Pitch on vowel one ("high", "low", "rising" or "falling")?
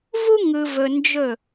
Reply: high